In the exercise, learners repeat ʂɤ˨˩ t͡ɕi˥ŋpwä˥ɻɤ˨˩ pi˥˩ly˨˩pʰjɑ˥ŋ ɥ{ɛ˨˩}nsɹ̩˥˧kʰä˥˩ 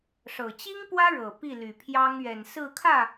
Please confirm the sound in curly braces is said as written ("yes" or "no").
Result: yes